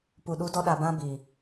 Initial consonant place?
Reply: labial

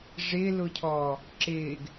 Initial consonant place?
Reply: retroflex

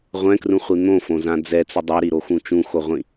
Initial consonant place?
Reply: uvular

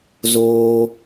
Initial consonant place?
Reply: alveolar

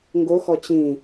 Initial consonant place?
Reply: velar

